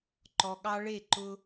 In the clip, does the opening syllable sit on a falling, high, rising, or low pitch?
low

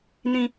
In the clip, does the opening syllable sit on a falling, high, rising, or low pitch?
low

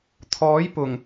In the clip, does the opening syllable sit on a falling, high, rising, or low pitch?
rising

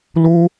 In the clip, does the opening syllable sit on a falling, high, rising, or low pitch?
high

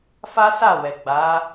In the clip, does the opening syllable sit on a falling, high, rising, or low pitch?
high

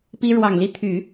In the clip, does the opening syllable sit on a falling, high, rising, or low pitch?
high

